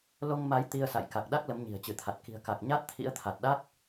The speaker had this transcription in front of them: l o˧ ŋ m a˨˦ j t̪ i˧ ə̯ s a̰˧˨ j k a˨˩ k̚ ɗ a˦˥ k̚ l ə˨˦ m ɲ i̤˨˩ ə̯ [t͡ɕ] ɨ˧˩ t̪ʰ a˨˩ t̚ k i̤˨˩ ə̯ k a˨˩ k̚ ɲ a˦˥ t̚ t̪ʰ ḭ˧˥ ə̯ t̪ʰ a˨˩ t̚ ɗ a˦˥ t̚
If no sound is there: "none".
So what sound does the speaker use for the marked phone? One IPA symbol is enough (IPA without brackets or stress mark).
t͡ɕ